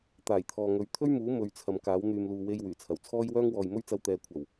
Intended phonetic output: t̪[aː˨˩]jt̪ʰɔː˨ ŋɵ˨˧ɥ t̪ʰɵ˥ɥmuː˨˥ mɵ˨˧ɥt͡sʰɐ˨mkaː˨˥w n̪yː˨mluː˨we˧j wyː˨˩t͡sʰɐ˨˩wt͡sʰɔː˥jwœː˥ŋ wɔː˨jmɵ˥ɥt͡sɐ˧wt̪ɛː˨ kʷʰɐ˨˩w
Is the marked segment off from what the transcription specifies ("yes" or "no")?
no